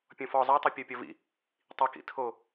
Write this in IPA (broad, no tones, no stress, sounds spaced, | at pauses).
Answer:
pʲ ɔ̃ f ɔ zˤ a tˤ i pʲ ɔ pʲ ɔ v ḭ | tˤ i k ḭ tʰ o